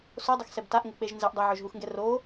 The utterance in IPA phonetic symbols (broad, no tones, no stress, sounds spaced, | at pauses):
s o dˤ ɘ x s ɛ b t a ʔ ŋ ɘ k͡p e ʒ n z ɛ ʔ dˤ ɛ ʕ ø ʒ ɦ u x ŋ ɡ ɛ r o